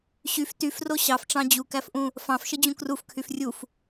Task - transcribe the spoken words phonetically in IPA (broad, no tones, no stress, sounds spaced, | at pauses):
ɕ y f t y f r o ɕ ɑ f ʈ͡ʂ ɑ̃ d͡ʑ u k æ f ʔ ũ | f ɑ̃ f ʃ ə d͡ʑ ũ k r u f kʰ y f rʲ u f